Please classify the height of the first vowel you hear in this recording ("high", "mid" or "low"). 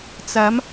low